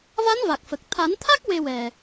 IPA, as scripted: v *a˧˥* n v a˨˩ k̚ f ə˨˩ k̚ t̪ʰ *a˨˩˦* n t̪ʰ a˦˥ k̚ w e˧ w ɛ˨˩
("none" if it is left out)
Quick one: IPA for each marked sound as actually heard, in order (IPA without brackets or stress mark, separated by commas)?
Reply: a˧˥, a˨˩˦